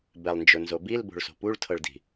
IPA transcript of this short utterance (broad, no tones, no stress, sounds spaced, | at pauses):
b ɛ lˠ n d͡ʒ ʊ n z o b i l b o̤ ɭ s o̤ p u ɭ tʰ ɤ ɭ d i̤